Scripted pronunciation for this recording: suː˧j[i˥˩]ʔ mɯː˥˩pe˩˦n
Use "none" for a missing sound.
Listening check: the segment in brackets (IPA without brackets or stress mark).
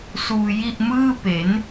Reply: i˥˩